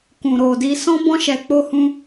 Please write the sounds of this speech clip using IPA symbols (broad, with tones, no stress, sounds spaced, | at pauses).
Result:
k ũ˨ ɾ o˨ d i˧ s ɔ̃˦ b ɔ̃˦ ʃ ɛ˧ k͡p o˦ h ũ˦